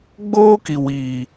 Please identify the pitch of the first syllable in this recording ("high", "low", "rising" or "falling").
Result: high